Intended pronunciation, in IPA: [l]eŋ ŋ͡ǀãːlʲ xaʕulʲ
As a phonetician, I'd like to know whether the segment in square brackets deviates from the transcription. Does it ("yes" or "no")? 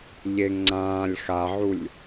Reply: yes